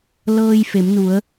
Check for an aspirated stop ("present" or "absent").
absent